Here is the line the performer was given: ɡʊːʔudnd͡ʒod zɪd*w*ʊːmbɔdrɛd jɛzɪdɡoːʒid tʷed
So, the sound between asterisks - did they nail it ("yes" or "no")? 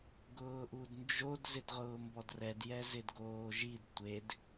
no